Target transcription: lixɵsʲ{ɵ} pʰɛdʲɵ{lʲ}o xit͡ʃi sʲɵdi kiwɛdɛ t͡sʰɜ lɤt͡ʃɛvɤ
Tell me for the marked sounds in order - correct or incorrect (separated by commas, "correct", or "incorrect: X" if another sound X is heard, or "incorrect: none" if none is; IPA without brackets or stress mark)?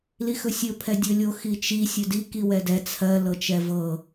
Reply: correct, correct